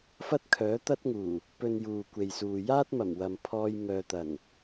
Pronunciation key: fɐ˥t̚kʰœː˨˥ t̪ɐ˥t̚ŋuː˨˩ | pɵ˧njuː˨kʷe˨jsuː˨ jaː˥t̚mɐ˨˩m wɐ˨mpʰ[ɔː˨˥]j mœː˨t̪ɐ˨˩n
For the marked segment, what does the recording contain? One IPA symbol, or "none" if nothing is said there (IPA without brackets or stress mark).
ɔː˧